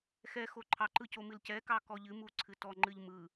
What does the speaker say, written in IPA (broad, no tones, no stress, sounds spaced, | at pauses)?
x ɛ x o ǃʰ ɑ ǃ ɯ c o m ɨ l c ɛ k ɑ k ɔ ʎ ɨ m u ǀʰ ɨ t ɔ ŋ͡ǃ ɨ ʎ m ɯ